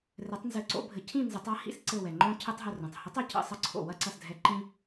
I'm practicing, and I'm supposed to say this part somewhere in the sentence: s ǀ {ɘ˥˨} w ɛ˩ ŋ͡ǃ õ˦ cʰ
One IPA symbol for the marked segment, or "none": ɘ˧˩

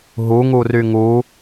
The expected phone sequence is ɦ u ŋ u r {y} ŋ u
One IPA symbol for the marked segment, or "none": y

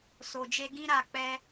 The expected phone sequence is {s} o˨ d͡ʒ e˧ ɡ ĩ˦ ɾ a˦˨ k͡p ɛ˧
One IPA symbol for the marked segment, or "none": s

